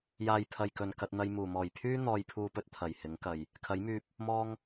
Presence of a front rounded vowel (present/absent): present